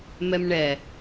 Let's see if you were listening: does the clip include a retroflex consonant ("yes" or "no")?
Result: yes